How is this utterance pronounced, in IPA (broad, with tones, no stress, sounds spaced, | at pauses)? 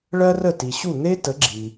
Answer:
ɭ ɜ˥ r ə˥˩ t i˩ ɕ u˥˩ n̪ e˥ t ə˩˥ ɡ͡ǁ i˩